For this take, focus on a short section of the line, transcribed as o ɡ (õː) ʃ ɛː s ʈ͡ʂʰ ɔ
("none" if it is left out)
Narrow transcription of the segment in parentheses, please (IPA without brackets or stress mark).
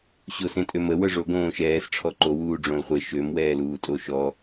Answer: õː